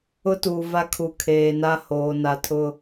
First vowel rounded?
yes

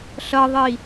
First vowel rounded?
no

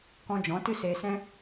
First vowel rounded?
yes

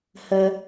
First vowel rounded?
no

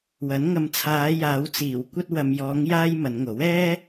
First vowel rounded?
no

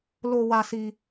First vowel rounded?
yes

